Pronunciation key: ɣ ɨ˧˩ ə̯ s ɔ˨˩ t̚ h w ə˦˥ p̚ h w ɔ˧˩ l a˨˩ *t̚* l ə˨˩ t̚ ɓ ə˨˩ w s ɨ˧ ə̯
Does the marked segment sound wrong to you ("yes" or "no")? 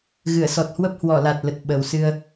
no